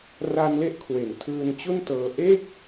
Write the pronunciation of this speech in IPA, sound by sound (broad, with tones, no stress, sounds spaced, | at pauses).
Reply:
r a˧ n l e˦˥ ʔ kʰ w e˩˦ n tʰ ɯː˧ n t͡ɕ u˥˩ n t ɤː˧ ʔ e˥˩ k̚